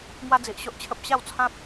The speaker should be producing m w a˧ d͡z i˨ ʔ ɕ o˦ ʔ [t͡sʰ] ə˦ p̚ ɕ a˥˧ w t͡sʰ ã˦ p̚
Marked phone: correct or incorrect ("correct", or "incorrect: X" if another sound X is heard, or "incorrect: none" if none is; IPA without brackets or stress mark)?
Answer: incorrect: t͡ɕʰ